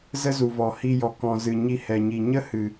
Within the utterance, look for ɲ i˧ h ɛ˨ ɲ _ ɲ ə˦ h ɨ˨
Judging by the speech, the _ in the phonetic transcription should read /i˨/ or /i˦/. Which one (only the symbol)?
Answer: i˨